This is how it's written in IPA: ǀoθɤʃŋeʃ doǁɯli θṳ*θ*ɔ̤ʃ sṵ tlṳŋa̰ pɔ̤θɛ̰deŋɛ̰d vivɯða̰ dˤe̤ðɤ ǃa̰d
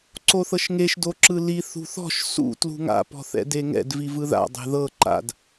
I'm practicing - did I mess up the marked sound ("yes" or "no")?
no